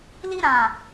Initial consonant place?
alveolar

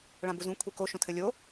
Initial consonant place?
retroflex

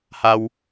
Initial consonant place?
glottal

